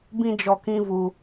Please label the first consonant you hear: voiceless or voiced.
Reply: voiced